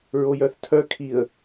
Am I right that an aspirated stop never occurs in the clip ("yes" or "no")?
no